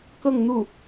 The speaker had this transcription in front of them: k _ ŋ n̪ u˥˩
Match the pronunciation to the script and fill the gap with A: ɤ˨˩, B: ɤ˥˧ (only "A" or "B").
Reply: B